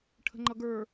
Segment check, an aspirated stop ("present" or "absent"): present